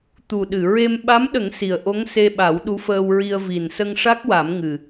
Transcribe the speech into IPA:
t̪ u˨˩ ɗ ɨ˨˩˨ ɹ e˧ m ɓ a˧˥ m ɗ ə˨˩˦ ŋ s i˨˩ ə̯ ʔ o˧˥ ŋ s e˧ ɓ a˨˩˦ w ɗ u˧˥ f əː˧ w ɹ i˧ ə̯ v i˨˩ n s ə˧ ŋ ʂ a˦˥ k̚ w a˨˩˦ m ŋ ɨ˨˩

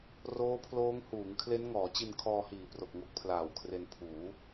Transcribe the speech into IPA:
r oː˦˥ pʰ l oː˦˥ ŋ h uː˩˦ ŋ kʰ l e˦˥ n ŋ ɔː˩˦ t͡ɕ i˧ n kʰ ɔː˧ h iː˨˩ p r o˨˩ k̚ ŋ o˦˥ k̚ pʰ l aː˨˩ w kʰ r e˧ n pʰ uː˩˦

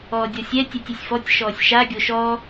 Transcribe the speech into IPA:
ɔː dʲ ɔ sʲ ɛ tʲ ɛ tʲ ɛ sʲ f ɔ tʲ ʃ ɔː sʲ ʃ a ɡʲ o ʃ ɔː

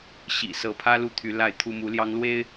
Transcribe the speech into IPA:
ɕ ḭ˨˩ s ɤ˧˥ pʰ ä˥ l u˥˩ t̪ʰ y˧˥ l a˥˩ ɪ̯ t̪ʰ u˥ m u˧˥ l j ɑ˥ ŋ l w e˥ ɪ̯

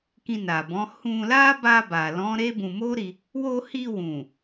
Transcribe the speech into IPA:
k ĩ˧ n a˨ b ɔ̃˨˦ h ũ˧ l a˦ b a˧ b a˨ l ɔ̃˨˦ ɾ e˦ b ũ˧ m o˦ ɾ i˧ | w o˧ h i˧ w ũ˨

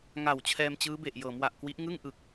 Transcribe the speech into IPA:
ŋ a˨˩ w t͡ɕʰ ɛː˧ m t͡ɕ ɯː˦˥ b e˨˩ ʔ j ɤː˩˦ m w a˨˩ ʔ k w i˦˥ ʔ ŋ ɯ˥˩ ŋ ʔ ɯ˨˩ k̚

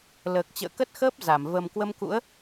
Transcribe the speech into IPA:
l əː˨˩ k̚ t͡ɕ ə̰ː˧˨ k ə˦˥ t̚ x əː˦˥ p̚ z a˧˩ m v ə˨˩ m k w ə˧ m k ṵ˧˥ ə̯

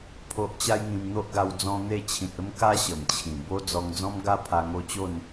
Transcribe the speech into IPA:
pʰ o˦ ʔ t͡ɕ a˦ j ŋ ĩ˧ m n̪ o˦ ʔ ɡ a˧ w d͡z ɔ̃˧ n̪ e˥˧ t͡ɕʰ ĩ˨ t̚ ə˦ m k a˦ ɕ ə˨˩ m t͡ɕʰ ĩ˨˩ b o˦ d͡z ɔ˧ ŋ d͡z ɔ̃˦ m ɡ a˦ pʰ a˧ ŋ o˥˧ t͡ɕ o˥˧ n

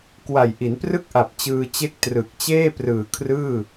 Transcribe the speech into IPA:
k w a˨˩ j ʔ i˩˦ n p r ɯ˥˩ k̚ ʔ a˨˩ p̚ t͡ɕ ɯː˧ t͡ɕ e˥˩ k̚ t r ɯ˨˩ k̚ t͡ɕ eː˥˩ p r ɯː˨˩ kʰ r ɯː˥˩

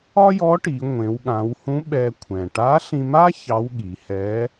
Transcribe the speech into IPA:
ɒ˥ j ɔ˧˥ ʈ i˩˧ ŋʷ ẽ˩˧ w ɠ ã˩˧ w h ũ˧˥ ɓ ɛ˧ kʷʰ ɛ̃˩ ʈ a˧˥ ɬ ĩ˧ m a˥ ç ɑ˧˥ w ɠ i˩˧ h ɛ˧˥

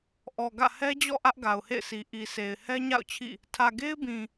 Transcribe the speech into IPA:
ʔ ɔ˨ ɡ ä̰˦˨ h ɛ˦ d͡ʑ ɔ̰˦˨ ʔ ä˦ ʔ ɡ a˨ ʊ̯ h ḛ˦˨ ɪ̯ sʰ i˨ ʔ i˨ sʰ e˨ ɪ̯ h ɛ˦ ɲ a̰˦˨ ʊ̯ t͡ɕʰ ḭ˦˨ | tʰ ä˨ ɡ e˦ ɪ̯ b ĩ˨

